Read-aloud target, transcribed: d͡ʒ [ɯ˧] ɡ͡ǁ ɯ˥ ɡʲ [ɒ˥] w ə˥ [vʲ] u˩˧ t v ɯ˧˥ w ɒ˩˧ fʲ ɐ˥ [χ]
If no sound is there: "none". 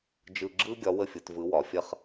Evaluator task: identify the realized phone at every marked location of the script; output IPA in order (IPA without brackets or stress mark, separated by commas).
ɯ˧, ɒ˧˥, fʲ, χ